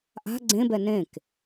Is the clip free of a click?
no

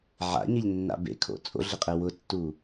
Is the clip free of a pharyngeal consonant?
no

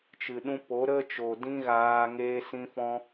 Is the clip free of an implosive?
no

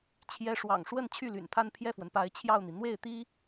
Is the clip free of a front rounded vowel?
no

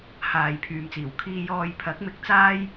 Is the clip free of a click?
yes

